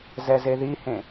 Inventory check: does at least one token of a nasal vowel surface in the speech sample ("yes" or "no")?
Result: yes